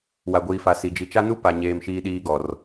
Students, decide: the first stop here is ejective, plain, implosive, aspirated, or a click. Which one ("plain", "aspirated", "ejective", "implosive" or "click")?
plain